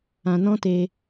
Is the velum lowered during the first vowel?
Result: yes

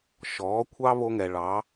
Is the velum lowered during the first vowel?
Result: no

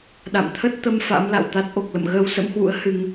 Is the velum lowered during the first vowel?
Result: no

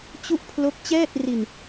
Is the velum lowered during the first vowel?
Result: no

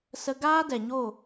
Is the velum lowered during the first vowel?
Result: no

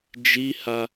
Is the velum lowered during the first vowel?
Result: no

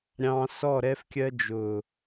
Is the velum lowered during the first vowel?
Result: yes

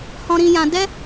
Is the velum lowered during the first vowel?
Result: yes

